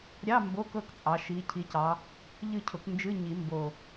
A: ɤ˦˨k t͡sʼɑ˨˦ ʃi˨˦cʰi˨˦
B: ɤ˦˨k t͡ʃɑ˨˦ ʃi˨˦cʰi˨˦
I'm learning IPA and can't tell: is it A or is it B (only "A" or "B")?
A